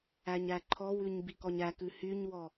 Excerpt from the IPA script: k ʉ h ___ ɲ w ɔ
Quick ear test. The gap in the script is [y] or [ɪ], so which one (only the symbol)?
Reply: y